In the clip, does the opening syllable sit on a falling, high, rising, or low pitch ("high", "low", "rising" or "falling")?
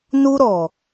high